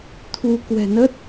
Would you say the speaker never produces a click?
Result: yes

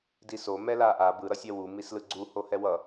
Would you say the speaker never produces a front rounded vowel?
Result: yes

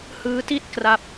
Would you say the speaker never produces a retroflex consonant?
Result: yes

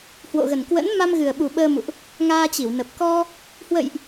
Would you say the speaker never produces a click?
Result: yes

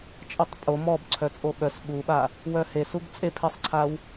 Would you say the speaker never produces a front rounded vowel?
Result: no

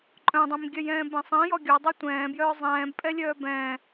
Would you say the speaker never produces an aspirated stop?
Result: yes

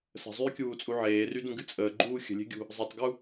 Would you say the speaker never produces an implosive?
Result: yes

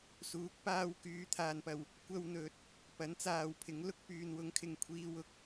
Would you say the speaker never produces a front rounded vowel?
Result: no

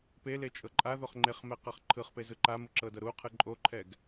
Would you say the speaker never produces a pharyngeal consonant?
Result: yes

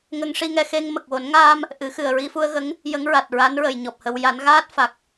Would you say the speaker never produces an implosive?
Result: yes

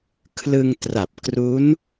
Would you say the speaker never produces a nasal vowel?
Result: yes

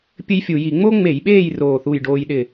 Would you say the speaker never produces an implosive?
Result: no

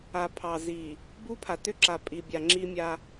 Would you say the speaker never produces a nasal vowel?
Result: yes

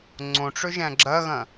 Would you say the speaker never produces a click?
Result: no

